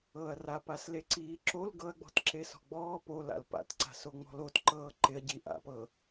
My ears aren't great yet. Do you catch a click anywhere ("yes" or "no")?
yes